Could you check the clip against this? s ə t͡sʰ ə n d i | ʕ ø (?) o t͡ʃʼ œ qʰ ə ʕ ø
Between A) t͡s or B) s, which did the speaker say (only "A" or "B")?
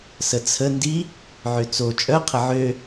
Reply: A